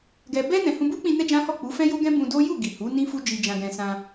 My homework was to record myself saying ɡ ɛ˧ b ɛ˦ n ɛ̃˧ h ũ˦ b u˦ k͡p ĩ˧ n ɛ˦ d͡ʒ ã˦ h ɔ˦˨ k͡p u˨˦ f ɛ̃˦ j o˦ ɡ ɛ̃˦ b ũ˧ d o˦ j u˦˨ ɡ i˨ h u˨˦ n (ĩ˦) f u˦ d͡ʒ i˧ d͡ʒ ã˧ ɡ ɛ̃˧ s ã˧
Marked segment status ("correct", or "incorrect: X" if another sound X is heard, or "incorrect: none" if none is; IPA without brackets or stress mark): correct